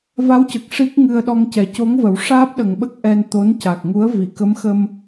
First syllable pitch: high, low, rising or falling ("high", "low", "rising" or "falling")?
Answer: rising